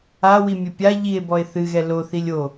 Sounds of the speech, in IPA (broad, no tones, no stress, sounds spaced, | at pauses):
a w i mʲ ɘ pʲ a ʎ i e̯ b ɔ e̯ θ ɨ ɣ ɛ l o θ i lʲ o